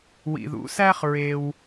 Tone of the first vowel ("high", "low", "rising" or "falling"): low